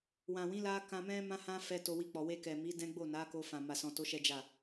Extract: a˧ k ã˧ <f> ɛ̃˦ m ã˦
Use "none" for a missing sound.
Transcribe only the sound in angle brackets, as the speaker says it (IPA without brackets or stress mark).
m